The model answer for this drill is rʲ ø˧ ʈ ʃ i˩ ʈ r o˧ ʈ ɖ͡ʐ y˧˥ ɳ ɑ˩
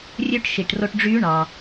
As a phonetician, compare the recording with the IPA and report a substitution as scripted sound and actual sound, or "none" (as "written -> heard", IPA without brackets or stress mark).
none